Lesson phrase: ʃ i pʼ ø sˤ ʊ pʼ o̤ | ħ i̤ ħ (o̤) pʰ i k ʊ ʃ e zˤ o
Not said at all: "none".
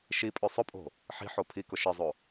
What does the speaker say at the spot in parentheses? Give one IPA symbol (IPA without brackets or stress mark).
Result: o